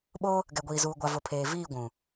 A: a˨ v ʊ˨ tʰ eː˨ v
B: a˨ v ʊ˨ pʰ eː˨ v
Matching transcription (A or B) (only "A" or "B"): B